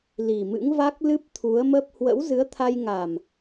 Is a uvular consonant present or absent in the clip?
absent